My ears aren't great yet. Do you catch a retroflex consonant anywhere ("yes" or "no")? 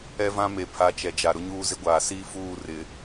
no